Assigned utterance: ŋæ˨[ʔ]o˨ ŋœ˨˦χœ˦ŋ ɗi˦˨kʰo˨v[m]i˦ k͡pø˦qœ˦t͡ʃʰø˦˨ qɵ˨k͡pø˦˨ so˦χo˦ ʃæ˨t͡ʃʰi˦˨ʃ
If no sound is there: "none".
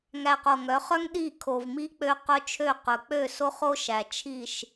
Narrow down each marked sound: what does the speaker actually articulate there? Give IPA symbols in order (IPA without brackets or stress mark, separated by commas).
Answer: q, m